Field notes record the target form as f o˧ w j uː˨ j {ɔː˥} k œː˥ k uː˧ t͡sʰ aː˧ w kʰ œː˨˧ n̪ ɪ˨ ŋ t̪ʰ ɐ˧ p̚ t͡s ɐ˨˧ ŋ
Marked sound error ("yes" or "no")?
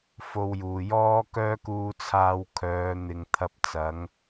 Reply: no